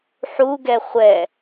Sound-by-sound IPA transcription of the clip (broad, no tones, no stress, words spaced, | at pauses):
ħuɡɛ χʷɛ